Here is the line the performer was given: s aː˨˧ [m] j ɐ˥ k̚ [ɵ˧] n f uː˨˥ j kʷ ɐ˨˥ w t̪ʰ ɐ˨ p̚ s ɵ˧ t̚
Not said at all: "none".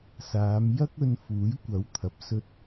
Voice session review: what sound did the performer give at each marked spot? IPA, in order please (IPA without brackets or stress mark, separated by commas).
m, ɵ˧